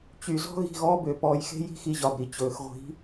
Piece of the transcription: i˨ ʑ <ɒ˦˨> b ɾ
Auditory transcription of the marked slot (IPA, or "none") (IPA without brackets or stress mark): ɒ˨